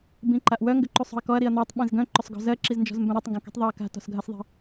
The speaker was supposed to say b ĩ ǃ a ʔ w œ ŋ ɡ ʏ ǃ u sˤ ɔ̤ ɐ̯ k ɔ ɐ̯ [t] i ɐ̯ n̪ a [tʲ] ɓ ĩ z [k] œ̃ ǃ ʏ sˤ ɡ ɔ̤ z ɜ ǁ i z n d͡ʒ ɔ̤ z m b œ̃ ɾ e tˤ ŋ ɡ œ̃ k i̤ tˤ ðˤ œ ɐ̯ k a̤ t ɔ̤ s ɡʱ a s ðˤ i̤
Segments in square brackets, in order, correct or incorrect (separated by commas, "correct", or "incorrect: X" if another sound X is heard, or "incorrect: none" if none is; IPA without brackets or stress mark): incorrect: ɾ, incorrect: tˤ, incorrect: ɡ